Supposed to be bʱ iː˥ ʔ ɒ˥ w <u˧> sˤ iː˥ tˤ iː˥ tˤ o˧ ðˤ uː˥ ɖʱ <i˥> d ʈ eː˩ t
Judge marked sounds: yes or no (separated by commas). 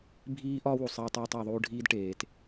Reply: yes, no